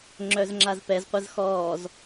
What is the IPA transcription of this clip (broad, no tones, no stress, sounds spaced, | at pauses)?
ŋ͡ǁ œ z ŋ͡ǁ a z p ɛ z qʷ ə z x ɔː z